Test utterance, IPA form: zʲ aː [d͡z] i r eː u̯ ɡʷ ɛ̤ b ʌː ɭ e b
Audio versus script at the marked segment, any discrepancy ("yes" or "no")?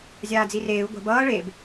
no